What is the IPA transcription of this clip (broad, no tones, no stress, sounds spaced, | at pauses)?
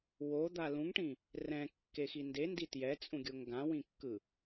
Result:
w o d̪ a l ũ ŋ ʈ ĩ | r ɛ̃ kː e x i n d e n d i t j ɛ t͡sʼ ũ ɡʲ o ŋ ɡ ã w ĩ kː ɯ